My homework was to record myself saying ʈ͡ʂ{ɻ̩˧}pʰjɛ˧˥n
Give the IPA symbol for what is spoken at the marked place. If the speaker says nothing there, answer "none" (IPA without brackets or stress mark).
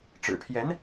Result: ɻ̩˨˩